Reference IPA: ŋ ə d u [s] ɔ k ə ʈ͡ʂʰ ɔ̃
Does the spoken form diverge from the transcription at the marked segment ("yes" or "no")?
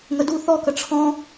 yes